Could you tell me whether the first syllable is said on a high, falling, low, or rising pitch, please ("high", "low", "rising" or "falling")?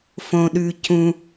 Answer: low